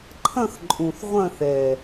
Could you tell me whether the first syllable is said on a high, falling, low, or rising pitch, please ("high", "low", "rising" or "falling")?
falling